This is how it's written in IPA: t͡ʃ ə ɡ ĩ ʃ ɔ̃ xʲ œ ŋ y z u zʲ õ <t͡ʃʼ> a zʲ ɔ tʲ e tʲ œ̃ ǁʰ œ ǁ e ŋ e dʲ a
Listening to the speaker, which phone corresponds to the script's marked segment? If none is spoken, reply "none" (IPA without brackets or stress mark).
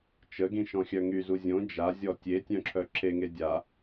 d͡ʒ